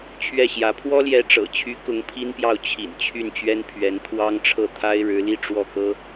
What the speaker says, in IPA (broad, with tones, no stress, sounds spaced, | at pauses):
t͡ɕʰ ɥ ɛ˥˩ ɕ j ä˧˥ pʰ w ɔ˥ l j ɛ˧˥ ʈ͡ʂ ɤ̰˨˩ t͡ɕʰ y˧˥ k ʊ˧˥ ŋ pʰ i˥ n p j ɑ˥˩ ʊ̯ t͡ɕʰ ḭ˨˩ n t͡ɕʰ y˥˩ n t͡ɕ ɥ ɛ˥ n pʰ ɥ ɛ˧˥ n t̪ʰ w ɑ˥ ŋ ʈ͡ʂʰ ɤ˥˩ t̪ʰ a˥ ɪ̯ ɻ ɻ̩˧˥ l i˥˧ ʈ͡ʂ w ɔ˥˩ k ɤ˥